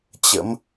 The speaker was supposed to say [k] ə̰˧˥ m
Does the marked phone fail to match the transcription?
yes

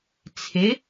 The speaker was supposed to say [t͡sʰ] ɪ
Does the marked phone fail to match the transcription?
no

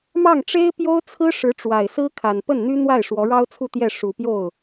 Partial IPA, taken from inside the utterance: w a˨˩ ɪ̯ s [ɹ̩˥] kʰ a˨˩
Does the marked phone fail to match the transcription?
no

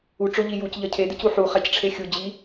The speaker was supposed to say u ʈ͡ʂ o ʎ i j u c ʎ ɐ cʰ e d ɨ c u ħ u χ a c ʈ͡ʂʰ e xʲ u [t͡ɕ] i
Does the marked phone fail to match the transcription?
yes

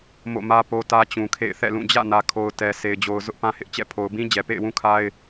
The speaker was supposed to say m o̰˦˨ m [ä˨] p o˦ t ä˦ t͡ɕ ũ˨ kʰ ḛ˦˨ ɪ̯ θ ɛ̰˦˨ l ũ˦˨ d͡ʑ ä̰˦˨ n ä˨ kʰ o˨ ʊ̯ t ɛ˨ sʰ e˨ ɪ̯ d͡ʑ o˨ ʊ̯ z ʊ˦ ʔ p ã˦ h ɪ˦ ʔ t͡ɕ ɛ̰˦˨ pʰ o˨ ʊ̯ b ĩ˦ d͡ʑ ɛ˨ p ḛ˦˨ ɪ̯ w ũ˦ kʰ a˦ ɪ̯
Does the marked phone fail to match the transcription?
yes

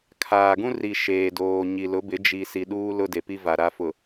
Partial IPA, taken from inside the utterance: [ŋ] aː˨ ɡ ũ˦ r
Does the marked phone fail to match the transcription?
yes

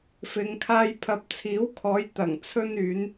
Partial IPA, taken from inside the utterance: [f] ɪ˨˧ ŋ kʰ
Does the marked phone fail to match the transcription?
no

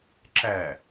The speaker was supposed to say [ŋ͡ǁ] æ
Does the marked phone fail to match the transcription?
yes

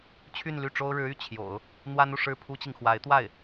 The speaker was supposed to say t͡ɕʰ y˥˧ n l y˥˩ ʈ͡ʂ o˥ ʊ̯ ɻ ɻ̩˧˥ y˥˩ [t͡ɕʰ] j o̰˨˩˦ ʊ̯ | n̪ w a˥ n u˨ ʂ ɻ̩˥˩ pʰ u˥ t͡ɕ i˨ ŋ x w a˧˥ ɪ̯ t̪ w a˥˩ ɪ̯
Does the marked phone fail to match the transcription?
no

